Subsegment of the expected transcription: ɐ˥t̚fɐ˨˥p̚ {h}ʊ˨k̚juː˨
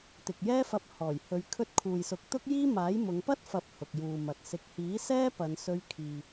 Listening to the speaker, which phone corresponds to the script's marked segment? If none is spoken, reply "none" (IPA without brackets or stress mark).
h